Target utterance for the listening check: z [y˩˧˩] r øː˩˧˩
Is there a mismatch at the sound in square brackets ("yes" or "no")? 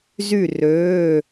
yes